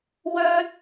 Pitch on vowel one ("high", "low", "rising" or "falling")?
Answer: high